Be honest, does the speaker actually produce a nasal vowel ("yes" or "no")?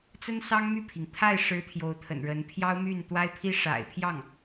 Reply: no